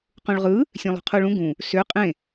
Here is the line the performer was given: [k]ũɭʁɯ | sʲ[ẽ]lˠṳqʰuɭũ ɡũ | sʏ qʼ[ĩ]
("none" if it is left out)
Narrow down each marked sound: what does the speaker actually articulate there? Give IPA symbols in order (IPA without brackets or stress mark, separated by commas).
q, ẽ, ẽ